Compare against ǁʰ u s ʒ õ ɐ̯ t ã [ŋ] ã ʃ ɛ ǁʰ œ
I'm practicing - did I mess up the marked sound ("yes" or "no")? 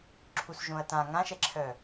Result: no